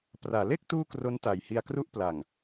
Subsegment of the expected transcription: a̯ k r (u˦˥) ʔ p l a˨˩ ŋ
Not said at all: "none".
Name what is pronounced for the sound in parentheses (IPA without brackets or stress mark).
u˥˩